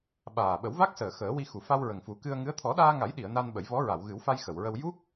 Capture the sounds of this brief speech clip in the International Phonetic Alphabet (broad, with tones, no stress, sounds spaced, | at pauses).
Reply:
ɓ aː˨˩ ɓ ə˨˩˦ w v a˦˥ k̚ s əː˨˩ x əː˨˩˦ w i˧ x u˨˩˨ f a˧ w ɹ ə˨˩ ŋ f u˨˩˦ k ɨ˧ ə̯ ŋ ɨ˧˥ ə̯ t̪ʰ ɔ˨˩˦ ɗ aː˧ ŋ a˨˩˦ j ɗ i˨˩˨ ə̯ n a˧ n ɓ ə˨˩˦ j v ɔ˧˥ ɹ a˨˩˨ w ɣ ɨ˨˩˦ w f a˧ j x ə˨˩˨ w ɹ ə˧ w j u˦˥ k̚